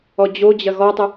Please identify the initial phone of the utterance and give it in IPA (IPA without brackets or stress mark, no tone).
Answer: ɔ